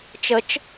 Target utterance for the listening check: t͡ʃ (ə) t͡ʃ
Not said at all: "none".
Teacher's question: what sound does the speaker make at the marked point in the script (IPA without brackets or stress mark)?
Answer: ə